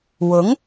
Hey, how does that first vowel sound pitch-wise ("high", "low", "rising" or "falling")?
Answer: rising